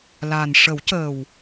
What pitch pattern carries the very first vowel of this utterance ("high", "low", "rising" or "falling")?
low